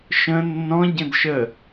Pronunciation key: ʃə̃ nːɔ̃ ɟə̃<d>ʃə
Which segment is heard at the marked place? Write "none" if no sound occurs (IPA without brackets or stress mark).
d